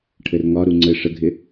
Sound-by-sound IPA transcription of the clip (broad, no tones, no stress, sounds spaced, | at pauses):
ʈʰ ɘ r ŋ ɒ ɾ u ŋ͡ǀ ɘ ʂ ə ɡʱ ɪ